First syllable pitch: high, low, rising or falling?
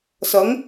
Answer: rising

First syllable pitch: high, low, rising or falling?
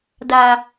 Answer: low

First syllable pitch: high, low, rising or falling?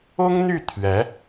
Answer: high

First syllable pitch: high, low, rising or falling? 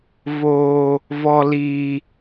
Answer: low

